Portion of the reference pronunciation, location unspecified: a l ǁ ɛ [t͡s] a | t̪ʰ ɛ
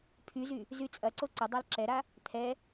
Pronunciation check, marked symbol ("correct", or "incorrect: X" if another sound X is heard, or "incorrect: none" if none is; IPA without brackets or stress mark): incorrect: ɾ